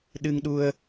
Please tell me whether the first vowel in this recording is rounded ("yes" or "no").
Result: no